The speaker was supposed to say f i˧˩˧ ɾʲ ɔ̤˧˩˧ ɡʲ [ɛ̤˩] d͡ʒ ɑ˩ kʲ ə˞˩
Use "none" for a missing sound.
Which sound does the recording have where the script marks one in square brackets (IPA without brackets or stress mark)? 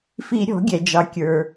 ɛ˩